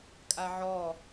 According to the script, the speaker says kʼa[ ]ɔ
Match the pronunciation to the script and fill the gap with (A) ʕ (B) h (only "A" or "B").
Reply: A